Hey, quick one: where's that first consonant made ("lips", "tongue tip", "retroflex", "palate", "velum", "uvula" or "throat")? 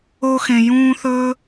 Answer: velum